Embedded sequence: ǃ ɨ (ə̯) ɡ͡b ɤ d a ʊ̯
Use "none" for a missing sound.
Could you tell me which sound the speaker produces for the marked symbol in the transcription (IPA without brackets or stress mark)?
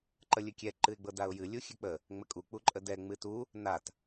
ɪ̯